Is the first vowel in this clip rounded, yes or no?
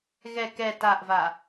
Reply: no